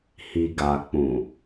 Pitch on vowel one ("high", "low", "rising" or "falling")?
low